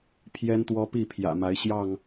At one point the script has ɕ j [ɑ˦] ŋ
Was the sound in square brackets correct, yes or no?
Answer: no